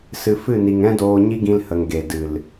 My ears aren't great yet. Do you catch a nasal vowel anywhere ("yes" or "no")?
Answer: yes